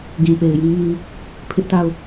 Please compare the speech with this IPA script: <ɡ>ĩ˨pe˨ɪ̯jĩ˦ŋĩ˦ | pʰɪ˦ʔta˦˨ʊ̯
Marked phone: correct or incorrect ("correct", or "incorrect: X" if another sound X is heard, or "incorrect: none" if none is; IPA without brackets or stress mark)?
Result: correct